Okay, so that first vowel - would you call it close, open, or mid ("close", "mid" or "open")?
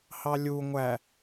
open